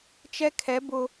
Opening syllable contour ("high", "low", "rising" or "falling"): high